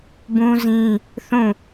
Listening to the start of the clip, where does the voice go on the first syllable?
high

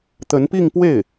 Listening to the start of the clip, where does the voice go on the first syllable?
rising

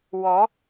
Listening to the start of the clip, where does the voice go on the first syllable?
rising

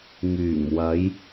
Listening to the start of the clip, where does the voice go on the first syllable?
low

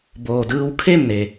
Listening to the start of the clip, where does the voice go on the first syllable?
low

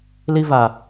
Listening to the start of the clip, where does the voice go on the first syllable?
high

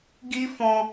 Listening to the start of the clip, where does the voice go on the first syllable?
high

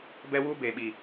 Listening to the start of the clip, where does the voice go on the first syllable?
high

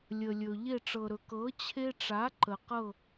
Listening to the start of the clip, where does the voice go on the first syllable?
low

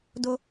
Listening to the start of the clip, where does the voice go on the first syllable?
high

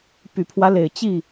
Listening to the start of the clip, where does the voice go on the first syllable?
low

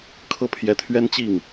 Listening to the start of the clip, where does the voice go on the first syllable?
falling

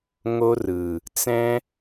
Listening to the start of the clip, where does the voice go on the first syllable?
high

